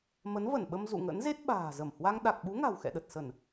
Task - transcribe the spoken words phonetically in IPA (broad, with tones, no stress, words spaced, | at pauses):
mə˨˦nvə˧˩nɓə˧m zṵ˧˨ŋə̰˧˥nze˦˥t̚ ɓa̤ː˨˩zə˧˩mhwa˧ŋ ɗa˨˩k̚ɓu˨˦ ŋa̤˨˩wxɛ̰˧˨ɗə˨˩t̚sə˧˩˨n